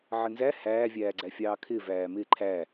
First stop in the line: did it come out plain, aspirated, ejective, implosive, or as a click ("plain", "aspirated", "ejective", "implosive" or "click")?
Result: click